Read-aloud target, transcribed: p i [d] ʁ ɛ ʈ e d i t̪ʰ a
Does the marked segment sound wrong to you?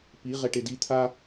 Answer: yes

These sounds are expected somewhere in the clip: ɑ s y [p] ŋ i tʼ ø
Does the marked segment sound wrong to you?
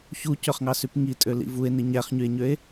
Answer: no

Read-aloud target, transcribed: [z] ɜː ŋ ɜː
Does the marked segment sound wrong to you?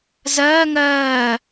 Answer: no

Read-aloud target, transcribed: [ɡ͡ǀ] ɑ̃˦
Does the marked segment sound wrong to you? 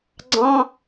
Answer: no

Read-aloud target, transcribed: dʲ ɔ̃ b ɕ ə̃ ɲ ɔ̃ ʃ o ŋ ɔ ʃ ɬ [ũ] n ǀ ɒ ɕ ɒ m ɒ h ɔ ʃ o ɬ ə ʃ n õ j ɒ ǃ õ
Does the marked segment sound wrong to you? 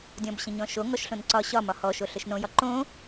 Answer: yes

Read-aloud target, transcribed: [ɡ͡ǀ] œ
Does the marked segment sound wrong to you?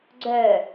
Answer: no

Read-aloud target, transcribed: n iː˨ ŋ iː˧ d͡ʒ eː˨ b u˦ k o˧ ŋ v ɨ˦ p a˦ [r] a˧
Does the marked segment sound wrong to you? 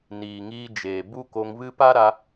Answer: yes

